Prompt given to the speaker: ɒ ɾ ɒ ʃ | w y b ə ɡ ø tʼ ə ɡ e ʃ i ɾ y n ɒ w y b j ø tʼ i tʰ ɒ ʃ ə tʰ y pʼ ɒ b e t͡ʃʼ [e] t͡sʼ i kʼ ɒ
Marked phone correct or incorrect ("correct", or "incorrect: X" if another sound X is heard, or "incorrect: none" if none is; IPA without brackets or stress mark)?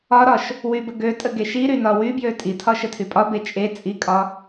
correct